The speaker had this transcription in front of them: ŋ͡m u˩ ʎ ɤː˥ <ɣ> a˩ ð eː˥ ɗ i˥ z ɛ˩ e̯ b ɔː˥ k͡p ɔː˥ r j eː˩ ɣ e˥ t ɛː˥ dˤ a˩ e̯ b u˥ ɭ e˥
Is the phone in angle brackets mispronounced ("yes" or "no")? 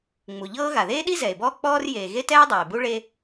no